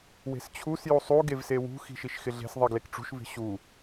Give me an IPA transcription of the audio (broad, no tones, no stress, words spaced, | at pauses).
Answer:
we̤st͡ɕʰus jusˤu ɡevsewṳ xi̤ʃiʃxɪɮe̤s ðˤiɡlekʈ͡ʂṳʃ vi̤ɕu